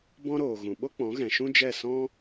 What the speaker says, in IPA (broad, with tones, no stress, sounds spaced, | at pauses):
b ɔ̃˦ ɾ oː˨ ɣ ũ˨ ɓ o˦ k͡p ɔ̃˨˦ ɣ ɛ̃˨ ʃ ũ˦ d͡ʒ ɛ˦˨ s ɔ̃˦